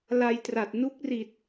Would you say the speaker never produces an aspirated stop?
yes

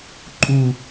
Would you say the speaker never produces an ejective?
no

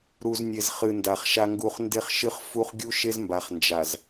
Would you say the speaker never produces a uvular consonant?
no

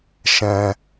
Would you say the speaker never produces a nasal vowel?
no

